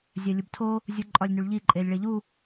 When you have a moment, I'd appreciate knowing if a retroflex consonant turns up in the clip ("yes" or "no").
yes